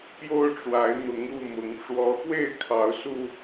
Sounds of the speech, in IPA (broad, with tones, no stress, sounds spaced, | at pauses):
p j o˦ ʊ̯ ʈ͡ʂ w a˨˦ ɪ̯ n̪ ʊ˨˦ ŋ u˥˨ m ʊ˨˦ ŋ ʈ͡ʂ w ɔ˨˦ x w e˥˨ ɪ̯ kʰ ɑ˨˦ ʊ̯ s u˧